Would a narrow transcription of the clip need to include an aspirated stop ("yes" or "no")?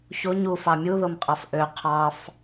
yes